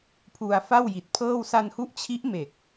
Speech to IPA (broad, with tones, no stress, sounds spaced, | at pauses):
pʰ u˧ a̯ f a˥˩ w j i˨˩ t̚ pʰ ɤː˥˩ w s a˧ n h u˦˥ ʔ t͡ɕʰ i˦˥ ʔ m e˨˩ k̚